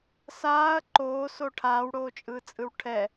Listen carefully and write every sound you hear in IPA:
s aː ɐ̯ ǃ oː s o ʈʰ aː w ɽ oː t͡ʃʼ ɯː t͡sʼ ɯ w ʈʰ ɛ

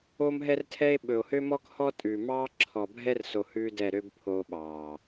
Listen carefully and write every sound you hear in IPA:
o˦ m ɦ ɛ˦ r tʰ ɛ˦ e̯ ɓ ɵ˨ o̯ h ø˦ m ɔ˦ k h ɔ˦ tʼ ʉː˨ m ɑː˦ ǁʰ ɔ˨ bʱ ɛ˦ r s o˨ h ʉː˦ d ɛ˦˨ ɾ ø˦ b pʰ oː˦ ɓ ɑː˨

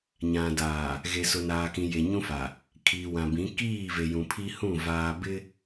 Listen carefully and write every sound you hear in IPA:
ɲ ã˨ d aː˨ | ɣ e˨ s ʊ˨ n aː˨ k ĩ˨ j e˨ ɲ ũ˦ f a˨ | kʰ iː˨ w ã˨ b ĩ˨˦ k iː˦˨ v e˨ j ũ˨ pʰ i˦ h ũ˦˨ v aː˨ b ɪ˦

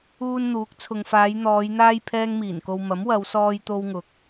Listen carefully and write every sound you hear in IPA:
uː˧ n n̪ uː˨˥ k̚ t͡sʰ ʊ˨ ŋ f aː˨˧ j n̪ ɔː˨˧ j n̪ aː˥ j pʰ ɛː˥ ŋ m iː˨˩ n k o˧ w m ɐ˨˥ m w ɐ˨˧ w s ɔː˧ j t̪ o˧ w ŋ ʊ˨ k̚

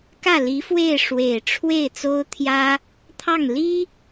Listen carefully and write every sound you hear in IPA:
k ä˥˩ l i˧˥ f w e˥˩ ɪ̯ ʂ w e˨˩ ɪ̯ ʈ͡ʂʰ w e˥˩ ɪ̯ t͡s o˥ ʊ̯ t̪ʰ j ä˥ | t̪ʰ ɑ˥˩ ŋ l i˥

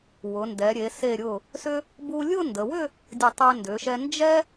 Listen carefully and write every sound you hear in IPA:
w ʊ˩˧ n d ɛ˩˧ ɾʲ e˩˧ s e˧˩ ɾʲ ʊ˧˩ | s ʏ˥ | b u˧ lʲ ʊ˥˧ n d ə˩˧ w ʏ˥˧ | dʲ ə˧˩ tˤ ɛ˧ n d ʏ˩˧ ʃ ɛ˧ n d͡ʒ ɛ˥

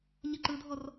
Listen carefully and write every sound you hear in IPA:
ɲ ɪ ǃ ɯ dʱ ɔ r

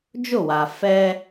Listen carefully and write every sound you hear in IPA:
d͡ʒ ʊ˦˨ w a˨ f ɛ˦

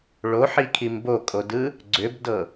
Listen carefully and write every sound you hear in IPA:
ɭ o ħ i kʰ i m b o kʼ o d ɯ | ɡ͡ǀ ʏ b d ɤ

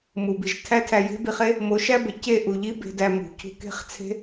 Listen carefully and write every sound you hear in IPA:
m u˨ b i˨ ʒ tʰ æ˦ tʰ æ˧ j e̤˦ b i˧ χ e˦ | m o˨˦ ʃ æ˦ b e˨ c e˦˨ ʔ u˨ ʎ i˦ b e̤˧ d æ˧ m ṳ˨ cʰ ṳ˧ k e̤˦ χ t͡sʰ e̤˦

